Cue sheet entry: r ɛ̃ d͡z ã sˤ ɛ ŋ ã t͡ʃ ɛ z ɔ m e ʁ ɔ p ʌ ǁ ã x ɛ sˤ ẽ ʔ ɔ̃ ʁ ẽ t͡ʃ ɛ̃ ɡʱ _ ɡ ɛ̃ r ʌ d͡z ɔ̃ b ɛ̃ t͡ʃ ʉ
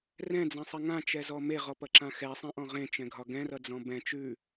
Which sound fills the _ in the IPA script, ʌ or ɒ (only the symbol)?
ɒ